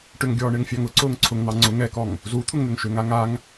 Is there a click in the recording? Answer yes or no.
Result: yes